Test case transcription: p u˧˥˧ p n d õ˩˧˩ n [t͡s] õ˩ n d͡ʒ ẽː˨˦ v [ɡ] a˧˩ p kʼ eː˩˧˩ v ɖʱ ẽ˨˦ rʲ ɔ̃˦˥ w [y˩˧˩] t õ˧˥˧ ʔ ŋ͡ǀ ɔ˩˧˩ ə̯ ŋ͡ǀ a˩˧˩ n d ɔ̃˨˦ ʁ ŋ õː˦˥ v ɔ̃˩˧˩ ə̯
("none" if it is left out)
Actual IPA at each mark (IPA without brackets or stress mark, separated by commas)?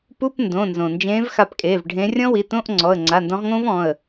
z, x, i˩˧˩